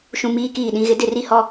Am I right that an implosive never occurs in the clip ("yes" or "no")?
no